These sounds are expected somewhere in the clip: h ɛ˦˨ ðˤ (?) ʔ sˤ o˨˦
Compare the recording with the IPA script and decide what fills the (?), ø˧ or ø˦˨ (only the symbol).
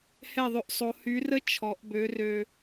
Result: ø˧